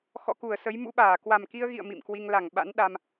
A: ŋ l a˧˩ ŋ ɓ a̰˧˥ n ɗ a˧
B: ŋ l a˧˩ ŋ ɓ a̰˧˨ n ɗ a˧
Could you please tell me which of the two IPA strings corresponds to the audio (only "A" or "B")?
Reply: A